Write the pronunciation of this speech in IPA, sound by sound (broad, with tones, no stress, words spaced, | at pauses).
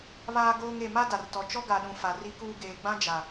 βaː˦ɡoː˦ŋ e˨ma˦da˨rtɔ˨ t͡ʃɔ˦ɡa˨ɗũ˨ fa˨ ri˦kuː˦ ɡeː˨ɡ͡bã˦ d͡ʒa˨